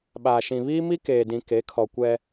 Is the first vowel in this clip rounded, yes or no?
no